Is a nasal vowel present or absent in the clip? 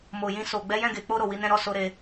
present